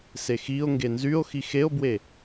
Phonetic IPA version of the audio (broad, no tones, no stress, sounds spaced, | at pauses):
s e x i o̯ ŋ ɡ e n z y o̯ x i x e o̯ b w e